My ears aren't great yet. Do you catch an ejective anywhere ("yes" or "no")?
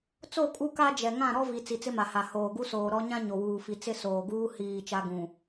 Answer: yes